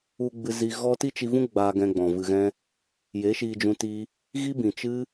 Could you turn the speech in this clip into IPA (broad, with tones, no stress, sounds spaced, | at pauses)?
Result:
u˧ ɡ͡b ɨ˧ z i˧ ɣ ɔ˦ t i˦ t͡ʃ i˧ v ũ˦ ɡ͡b aː˧ ɡ ɛ̃˧ ɡ͡b ɔ̃˨ v ɨ˧ ɣ ɛ̃˦ | j e˨˦ ʃ iː˧ d͡ʒ ũ˧ t i˦ | ɣ i˦ b ĩ˨ t͡ʃ ɨ˦